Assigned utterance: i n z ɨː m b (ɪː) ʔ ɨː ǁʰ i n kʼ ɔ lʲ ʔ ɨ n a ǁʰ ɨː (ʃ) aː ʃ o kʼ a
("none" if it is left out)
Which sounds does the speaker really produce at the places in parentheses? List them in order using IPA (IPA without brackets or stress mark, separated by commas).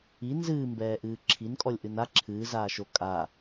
ɛː, z